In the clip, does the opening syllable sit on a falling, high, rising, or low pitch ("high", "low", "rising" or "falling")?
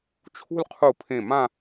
falling